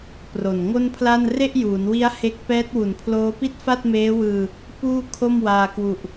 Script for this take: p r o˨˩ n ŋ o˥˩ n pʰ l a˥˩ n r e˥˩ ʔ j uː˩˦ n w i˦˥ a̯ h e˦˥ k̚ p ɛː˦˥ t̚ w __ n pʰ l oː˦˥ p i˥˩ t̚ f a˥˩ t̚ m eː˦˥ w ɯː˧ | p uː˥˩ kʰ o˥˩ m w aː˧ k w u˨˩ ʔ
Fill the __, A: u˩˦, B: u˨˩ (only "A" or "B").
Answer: B